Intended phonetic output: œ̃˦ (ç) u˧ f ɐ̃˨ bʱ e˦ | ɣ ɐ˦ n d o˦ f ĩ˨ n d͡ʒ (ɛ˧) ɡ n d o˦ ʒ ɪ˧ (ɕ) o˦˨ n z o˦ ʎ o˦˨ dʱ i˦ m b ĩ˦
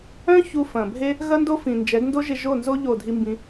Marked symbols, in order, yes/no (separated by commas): yes, no, no